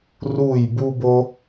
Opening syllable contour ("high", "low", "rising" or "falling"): falling